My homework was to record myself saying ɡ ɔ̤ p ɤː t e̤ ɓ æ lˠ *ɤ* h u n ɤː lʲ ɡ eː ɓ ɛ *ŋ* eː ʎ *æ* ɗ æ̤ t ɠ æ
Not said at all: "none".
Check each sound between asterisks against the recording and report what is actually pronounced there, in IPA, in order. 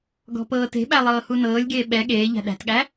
ɤː, ɠ, æ̤

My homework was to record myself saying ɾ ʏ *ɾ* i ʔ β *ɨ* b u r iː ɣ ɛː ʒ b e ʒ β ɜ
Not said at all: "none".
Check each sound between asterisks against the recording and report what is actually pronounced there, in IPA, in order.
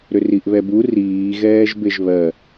r, ɛ

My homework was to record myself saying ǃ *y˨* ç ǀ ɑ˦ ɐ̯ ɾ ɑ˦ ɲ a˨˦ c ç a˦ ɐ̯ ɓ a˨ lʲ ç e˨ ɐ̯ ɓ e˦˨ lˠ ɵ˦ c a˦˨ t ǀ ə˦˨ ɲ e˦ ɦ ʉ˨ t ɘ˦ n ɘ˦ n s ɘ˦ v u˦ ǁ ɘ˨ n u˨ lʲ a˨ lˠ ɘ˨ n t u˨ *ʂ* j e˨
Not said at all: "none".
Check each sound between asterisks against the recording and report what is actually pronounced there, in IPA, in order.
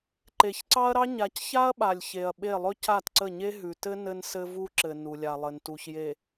e˨, ç

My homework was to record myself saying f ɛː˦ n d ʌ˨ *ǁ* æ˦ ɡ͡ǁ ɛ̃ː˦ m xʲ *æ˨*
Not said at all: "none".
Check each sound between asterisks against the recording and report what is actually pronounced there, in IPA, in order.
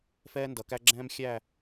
k, æ˦˨

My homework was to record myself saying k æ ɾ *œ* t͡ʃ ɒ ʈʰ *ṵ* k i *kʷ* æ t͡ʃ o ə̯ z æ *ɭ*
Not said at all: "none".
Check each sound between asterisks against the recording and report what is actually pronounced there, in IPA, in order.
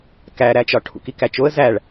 æ, ṵ, k, ɭ

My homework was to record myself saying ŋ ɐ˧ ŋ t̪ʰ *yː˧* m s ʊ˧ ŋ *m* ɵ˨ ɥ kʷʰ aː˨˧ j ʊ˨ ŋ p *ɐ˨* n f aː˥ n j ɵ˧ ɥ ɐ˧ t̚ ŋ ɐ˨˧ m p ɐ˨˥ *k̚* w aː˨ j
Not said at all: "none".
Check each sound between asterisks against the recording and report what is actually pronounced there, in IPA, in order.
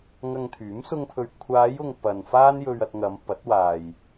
yː˨˥, pʰ, ɐ˨, t̚

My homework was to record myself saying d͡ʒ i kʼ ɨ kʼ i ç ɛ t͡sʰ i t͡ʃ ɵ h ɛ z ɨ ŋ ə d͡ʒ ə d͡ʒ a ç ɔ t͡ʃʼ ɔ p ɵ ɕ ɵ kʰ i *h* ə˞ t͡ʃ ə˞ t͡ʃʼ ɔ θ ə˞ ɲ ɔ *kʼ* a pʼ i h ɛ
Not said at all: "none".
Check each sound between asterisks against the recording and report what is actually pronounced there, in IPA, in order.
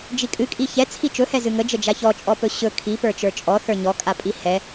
p, kʼ

